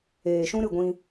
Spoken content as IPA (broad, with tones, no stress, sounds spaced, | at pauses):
eː˨ ʃ ũ˦ ɾ ɨ˦˨ ɡʷ ĩ˧